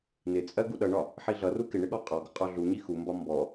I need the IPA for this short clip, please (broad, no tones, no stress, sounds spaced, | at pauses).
n ɪ t͡sʼ ɜ ɡ u ɗ ʌ ɳ ɒ | ħ i ɮ ʌ r u k ɪ ɳ ɪ ɠ ɔ qʼ ɔ ɡ ʊ qʼ ɔ ɮ u ɲ i x u m b ɒ m b ɔ